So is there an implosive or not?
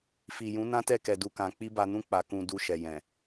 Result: no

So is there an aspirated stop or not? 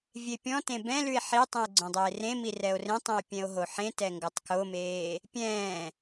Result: no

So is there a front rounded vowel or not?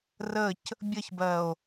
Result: no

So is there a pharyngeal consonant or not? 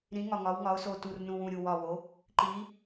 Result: no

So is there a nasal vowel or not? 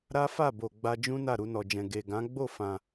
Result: yes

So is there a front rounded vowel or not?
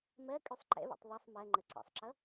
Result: yes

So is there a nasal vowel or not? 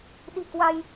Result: no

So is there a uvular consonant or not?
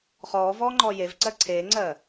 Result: yes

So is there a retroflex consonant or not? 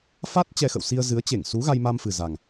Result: no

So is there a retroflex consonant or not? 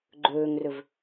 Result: no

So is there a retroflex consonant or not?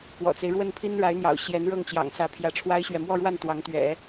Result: yes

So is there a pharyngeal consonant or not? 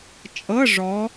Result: no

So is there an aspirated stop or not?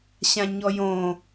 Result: no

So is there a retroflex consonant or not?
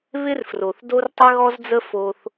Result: no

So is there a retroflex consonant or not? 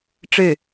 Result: yes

